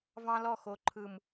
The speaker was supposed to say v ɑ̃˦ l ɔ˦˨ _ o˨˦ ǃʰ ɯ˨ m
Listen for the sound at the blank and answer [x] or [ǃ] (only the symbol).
x